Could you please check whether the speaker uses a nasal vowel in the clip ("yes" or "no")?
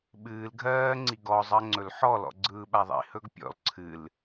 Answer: no